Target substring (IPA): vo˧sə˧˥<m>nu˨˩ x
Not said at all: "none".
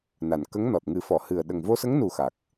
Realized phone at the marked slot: ŋ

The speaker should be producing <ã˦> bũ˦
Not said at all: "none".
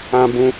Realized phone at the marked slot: ã˦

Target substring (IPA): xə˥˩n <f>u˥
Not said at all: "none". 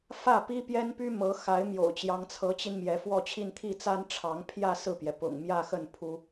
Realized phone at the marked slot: pʰ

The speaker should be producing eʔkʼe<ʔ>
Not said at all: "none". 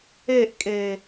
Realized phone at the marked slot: none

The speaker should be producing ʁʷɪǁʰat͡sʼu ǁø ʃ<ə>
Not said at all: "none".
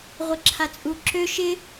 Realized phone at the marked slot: ɪ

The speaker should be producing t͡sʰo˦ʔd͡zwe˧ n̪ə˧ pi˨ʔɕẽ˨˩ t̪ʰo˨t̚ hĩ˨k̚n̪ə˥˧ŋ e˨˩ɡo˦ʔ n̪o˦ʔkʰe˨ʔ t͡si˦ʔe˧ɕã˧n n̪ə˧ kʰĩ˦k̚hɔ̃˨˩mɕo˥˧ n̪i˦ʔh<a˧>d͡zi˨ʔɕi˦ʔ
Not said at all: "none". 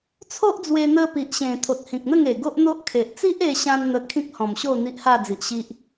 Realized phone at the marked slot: a˥˧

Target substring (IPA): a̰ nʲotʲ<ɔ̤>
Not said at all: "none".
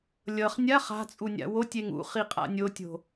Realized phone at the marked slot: o̤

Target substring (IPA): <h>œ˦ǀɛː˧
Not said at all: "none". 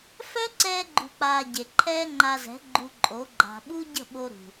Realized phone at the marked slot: f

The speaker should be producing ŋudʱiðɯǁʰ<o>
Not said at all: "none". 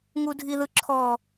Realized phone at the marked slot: ɔ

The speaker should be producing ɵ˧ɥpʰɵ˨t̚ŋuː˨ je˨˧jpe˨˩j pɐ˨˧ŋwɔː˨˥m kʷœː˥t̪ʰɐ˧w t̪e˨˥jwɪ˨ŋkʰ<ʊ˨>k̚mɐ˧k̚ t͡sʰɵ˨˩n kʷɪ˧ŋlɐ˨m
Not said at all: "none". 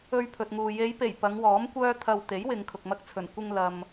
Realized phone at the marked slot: ʊ˨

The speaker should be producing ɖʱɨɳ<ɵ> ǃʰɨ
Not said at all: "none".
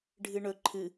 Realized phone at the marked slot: ɵ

